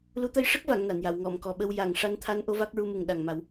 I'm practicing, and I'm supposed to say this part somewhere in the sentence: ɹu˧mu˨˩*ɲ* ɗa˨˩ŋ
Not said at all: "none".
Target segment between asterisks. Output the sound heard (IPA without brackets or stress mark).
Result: ŋ